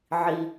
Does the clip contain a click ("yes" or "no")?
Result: no